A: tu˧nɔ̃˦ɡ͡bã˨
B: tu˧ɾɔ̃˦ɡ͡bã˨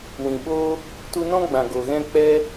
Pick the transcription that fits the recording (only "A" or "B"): A